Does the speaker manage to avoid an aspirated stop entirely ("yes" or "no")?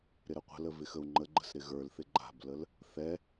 yes